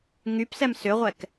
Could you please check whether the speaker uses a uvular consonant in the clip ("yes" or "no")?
yes